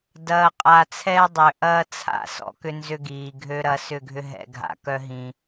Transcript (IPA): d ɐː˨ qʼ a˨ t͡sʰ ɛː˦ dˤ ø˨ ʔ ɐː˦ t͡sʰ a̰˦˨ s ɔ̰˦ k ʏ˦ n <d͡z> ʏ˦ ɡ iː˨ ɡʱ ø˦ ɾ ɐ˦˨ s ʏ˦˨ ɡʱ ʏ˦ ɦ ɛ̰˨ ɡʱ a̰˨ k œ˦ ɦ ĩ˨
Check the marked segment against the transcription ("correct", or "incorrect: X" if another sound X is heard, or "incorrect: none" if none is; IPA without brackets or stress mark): incorrect: z